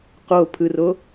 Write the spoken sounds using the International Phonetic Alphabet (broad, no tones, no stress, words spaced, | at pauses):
qopʰɯro